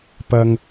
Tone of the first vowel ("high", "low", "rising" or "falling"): low